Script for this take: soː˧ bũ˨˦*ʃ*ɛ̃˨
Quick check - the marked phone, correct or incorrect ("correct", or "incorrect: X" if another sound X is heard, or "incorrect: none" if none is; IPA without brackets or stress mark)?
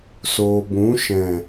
correct